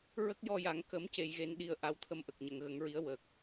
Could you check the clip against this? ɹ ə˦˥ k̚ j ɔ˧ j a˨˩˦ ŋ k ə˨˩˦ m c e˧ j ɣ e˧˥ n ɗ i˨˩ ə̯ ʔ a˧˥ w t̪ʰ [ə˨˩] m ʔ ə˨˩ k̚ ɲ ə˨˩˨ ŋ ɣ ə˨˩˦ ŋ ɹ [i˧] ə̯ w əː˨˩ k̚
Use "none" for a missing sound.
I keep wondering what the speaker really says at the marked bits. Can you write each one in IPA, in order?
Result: ə˧, i˧˥

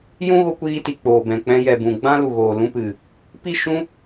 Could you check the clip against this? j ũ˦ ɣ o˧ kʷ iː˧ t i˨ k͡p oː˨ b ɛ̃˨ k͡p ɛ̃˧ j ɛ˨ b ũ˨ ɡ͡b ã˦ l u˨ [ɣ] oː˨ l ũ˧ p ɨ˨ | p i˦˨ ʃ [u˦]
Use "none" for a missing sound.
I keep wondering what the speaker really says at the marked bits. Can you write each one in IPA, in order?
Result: ɣ, ũ˦

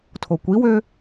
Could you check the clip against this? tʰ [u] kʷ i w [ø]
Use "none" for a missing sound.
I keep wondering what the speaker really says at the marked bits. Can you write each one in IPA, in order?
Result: o, ø

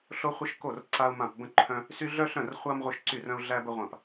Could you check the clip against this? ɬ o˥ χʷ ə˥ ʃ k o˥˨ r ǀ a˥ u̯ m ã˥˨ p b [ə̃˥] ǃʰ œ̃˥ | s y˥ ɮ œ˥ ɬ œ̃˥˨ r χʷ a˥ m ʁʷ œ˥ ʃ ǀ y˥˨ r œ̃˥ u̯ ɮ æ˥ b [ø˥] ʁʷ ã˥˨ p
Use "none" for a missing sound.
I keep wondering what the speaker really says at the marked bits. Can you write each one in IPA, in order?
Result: ə̃˥, ə˥

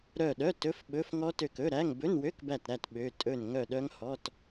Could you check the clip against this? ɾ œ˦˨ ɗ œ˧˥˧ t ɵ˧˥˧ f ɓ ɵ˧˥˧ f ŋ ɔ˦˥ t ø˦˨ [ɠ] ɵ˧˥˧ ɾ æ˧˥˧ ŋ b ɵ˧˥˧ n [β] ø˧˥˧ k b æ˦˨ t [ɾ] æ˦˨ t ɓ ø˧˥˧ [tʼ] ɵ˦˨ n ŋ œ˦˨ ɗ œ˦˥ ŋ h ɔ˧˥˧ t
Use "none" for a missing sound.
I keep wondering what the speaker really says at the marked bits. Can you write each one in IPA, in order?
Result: k, w, ɾ, tʼ

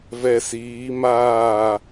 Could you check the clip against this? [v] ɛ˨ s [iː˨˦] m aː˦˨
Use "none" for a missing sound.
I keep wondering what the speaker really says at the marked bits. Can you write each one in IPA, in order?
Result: v, iː˨˦

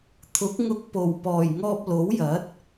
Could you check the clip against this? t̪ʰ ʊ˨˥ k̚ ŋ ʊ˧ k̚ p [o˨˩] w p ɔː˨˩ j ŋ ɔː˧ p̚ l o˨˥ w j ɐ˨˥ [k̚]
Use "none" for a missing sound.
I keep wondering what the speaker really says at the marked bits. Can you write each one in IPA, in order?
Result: o˨˩, t̚

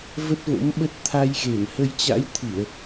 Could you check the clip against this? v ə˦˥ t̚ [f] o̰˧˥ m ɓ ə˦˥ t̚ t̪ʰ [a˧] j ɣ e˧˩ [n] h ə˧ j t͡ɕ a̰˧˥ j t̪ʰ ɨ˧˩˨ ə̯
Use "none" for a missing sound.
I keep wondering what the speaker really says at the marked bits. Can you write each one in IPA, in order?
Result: v, a˧, n

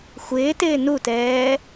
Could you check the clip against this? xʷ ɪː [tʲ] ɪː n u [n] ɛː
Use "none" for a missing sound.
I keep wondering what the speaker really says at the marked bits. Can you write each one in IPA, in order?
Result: t, t

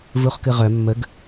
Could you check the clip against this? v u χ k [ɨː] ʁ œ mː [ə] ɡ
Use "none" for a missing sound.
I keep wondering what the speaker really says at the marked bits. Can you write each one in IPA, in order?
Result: ɨ, ə

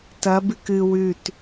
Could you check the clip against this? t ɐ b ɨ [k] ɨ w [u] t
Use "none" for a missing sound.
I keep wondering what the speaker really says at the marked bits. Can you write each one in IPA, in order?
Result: k, ʉ

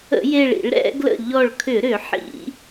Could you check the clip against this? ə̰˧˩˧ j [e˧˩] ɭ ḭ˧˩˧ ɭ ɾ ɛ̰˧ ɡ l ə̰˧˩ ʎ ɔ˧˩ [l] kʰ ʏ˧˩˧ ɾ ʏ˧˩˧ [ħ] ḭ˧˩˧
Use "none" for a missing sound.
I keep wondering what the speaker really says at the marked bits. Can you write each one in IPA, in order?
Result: e˧˩, ɭ, ħ

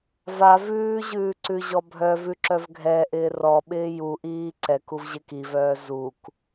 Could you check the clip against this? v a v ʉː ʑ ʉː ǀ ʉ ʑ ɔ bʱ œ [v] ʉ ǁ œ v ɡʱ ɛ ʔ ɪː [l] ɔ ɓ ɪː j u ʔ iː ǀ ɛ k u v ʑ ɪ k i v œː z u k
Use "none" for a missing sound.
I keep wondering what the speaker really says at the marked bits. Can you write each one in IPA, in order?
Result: v, r

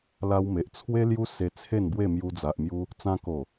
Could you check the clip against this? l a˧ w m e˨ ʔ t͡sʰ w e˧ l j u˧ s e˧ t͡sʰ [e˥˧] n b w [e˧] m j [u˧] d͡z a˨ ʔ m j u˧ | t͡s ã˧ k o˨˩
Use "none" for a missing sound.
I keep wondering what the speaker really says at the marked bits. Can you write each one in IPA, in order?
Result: e˥˧, e˥˧, u˧

